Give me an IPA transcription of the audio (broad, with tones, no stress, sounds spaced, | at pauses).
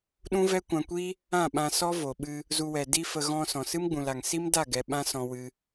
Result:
ɗ ũ˦ v ɛ˦ kʷ ã˧ kʷ i˦ | ã˦˨ ɓ ã˧ s ɔ˦ v o˨ ɓ ɨ˧ | z u˧ w ɛ˨ d i˦ f ə˧ ɣ ɔ̃˧ s ɔ̃˨ s ɨ˦ m ɡ͡b ũ˨ l a˨ ŋ s i˦ m d a˦˨ ɡ ɛ˨ ɓ ã˦ s ɔ̃˧ w ɨ˧